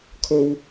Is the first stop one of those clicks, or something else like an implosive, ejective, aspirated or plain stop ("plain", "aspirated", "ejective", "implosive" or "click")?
aspirated